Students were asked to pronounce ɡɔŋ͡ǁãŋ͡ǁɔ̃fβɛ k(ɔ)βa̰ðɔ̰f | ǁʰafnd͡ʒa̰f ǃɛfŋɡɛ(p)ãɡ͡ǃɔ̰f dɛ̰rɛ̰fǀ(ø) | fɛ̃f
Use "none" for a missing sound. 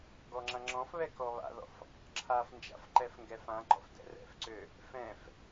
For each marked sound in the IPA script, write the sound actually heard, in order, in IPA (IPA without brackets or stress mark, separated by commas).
ɔ, f, ø